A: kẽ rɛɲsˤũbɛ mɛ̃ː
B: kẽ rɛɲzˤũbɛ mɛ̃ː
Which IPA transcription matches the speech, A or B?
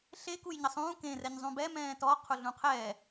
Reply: B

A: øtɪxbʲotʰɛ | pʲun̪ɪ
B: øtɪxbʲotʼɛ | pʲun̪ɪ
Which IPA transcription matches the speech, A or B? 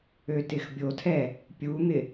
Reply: A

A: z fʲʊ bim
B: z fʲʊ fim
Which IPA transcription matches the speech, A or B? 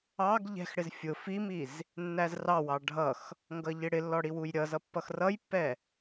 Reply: B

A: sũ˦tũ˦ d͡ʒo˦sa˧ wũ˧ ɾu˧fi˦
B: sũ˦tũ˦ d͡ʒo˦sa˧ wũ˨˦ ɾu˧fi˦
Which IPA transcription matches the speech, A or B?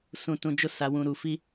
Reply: A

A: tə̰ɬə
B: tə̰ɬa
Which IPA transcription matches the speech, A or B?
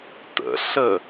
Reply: A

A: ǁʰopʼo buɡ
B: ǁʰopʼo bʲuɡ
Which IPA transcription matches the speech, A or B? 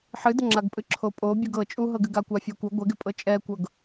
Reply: B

